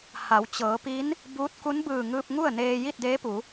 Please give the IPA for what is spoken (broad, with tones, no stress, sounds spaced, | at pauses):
h a˩˧ w t͡ɕ ɤː˩˧ p i˧˥ n | b uː˧˥ t̚ k u˧˥ n b ɯː˧˩ ŋ ɯː˧ p̚ ŋ u˥˨ ə̯ n eː˧ j i˥˨ t̚ d eː˧˥ p u˩˧